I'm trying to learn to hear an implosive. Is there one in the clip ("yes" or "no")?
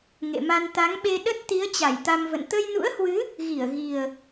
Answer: yes